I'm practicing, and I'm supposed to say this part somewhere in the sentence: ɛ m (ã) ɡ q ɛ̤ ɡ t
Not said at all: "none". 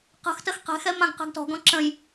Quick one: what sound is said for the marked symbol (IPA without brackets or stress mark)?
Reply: ã